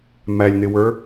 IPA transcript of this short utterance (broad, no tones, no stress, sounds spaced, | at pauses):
m æ lʲ n̪ ɪ w ə˞